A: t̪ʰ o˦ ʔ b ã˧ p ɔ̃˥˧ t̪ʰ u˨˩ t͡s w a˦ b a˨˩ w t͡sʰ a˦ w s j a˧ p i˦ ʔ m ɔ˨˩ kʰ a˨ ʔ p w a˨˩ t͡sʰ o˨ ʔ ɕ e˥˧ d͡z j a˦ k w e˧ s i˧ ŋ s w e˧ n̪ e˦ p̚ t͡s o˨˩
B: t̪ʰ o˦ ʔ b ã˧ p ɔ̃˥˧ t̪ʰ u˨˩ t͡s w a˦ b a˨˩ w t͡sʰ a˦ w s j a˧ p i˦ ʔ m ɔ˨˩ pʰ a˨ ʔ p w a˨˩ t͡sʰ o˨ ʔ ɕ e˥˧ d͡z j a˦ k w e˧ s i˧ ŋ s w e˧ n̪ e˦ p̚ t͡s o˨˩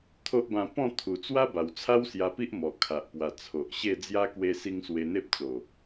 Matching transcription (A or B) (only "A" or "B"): A